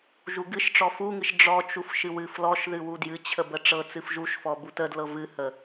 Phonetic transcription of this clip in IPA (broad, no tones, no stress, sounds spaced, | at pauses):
ʒ u ɡ ɨ ʃ ʈ͡ʂ ɔ f u ŋ ɨ ʃ ɖ͡ʐ ɔ t͡ʃ u f ʃ ɨ w ɨ f l ɔ ʃ ð ɨ w u d j ɨ t͡ɕʰ ə b ə ʈ͡ʂ ɤ t͡s ɨ f ʒ u ʃ f ɔ b u t ə d l ɤ v ɨ h ə